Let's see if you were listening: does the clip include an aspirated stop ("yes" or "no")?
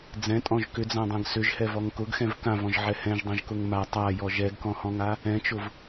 no